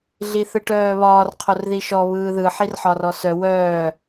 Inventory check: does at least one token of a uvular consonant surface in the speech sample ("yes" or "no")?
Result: yes